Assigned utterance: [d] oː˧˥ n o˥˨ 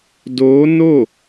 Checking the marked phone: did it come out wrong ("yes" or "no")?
no